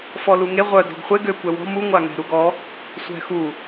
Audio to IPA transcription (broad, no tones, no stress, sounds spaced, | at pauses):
f ɔ l u ŋ e ʁʷ œ d ɔ̤ ɡ χʷ e ɡ ø kʷ ɛ w ɔ̤ m u ŋʷ a ŋ ɛ̤ ɾ u ɡ ɔ | sʷ ɛ̤ x u